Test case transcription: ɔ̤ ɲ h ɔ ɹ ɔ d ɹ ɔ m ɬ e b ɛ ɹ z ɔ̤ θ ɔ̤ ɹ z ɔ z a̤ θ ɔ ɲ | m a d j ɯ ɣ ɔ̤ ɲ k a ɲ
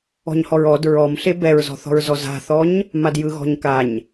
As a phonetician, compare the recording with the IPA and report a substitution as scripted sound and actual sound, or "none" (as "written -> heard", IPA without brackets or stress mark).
none